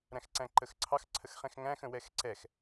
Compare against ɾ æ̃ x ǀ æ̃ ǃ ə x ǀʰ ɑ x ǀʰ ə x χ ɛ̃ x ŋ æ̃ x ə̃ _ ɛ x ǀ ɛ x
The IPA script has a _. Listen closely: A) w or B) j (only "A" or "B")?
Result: A